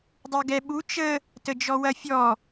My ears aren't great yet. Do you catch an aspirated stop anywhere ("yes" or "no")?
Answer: no